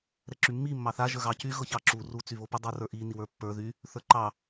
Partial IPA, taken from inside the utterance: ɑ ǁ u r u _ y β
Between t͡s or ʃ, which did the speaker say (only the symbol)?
t͡s